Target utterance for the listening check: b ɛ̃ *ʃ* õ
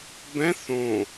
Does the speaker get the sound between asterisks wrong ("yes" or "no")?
yes